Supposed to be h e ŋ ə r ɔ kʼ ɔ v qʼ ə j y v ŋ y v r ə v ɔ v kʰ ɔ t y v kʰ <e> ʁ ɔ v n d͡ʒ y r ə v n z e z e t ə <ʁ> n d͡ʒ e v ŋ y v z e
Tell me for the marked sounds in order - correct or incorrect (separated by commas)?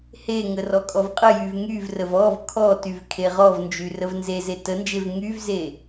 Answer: correct, incorrect